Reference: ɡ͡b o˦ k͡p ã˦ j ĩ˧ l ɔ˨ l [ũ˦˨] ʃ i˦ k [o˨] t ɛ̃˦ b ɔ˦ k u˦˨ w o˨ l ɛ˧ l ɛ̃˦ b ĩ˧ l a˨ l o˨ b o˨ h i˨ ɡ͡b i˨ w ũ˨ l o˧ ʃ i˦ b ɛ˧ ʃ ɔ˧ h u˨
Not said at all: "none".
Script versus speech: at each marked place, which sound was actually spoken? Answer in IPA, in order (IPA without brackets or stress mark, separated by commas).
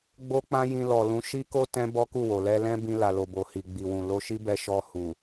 ũ˨˦, o˦